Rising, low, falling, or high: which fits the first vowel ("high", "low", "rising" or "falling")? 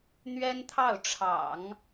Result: high